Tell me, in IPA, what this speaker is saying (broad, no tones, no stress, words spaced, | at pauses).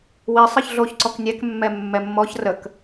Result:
wi sˤɨçɮoç ǀɔknʲɛk mːɛmːɛmːɔç rək